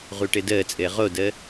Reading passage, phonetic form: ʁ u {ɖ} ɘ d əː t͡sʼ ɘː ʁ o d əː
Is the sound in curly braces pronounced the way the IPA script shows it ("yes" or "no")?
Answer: no